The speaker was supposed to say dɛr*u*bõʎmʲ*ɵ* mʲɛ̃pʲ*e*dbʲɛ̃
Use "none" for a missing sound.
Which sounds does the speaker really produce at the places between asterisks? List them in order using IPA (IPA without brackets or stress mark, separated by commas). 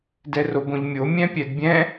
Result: o, o, ɛ